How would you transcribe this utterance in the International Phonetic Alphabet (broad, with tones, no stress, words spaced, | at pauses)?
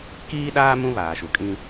kiː˦ɗaː˦ mũ˦βaː˨ʃu˨kʼĩ˦